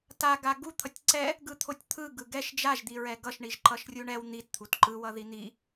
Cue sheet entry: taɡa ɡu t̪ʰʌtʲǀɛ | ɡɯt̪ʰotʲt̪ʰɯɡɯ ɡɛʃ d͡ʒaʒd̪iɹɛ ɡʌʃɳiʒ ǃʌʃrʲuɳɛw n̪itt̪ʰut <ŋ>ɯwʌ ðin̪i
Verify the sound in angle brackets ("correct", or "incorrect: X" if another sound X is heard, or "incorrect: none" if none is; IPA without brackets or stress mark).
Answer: incorrect: ǃ